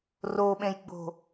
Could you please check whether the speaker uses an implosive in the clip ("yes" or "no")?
yes